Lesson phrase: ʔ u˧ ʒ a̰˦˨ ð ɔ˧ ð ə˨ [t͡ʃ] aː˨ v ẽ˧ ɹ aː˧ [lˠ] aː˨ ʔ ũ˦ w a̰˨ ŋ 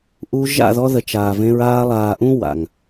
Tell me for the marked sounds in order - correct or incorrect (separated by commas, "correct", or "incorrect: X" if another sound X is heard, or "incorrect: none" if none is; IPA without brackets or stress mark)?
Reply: correct, correct